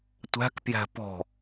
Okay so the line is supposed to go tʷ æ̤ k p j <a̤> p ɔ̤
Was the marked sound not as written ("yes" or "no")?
yes